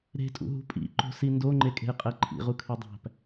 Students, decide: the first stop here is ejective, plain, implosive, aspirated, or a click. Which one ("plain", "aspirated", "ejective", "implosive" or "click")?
ejective